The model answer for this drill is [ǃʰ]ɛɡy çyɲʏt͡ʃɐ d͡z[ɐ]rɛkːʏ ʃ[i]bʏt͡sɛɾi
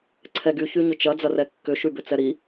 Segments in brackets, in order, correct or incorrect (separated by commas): incorrect, correct, incorrect